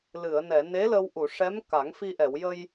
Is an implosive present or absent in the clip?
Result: absent